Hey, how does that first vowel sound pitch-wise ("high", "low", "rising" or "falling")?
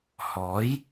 rising